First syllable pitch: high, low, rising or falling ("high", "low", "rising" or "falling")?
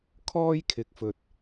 high